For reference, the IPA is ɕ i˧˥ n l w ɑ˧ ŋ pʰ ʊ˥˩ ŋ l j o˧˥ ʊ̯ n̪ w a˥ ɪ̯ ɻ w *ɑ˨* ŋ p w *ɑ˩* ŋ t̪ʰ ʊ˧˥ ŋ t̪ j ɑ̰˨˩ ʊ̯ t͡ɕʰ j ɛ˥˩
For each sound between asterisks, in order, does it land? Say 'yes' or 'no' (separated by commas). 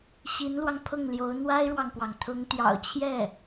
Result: yes, yes